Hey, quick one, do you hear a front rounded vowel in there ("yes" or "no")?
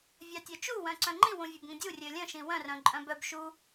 yes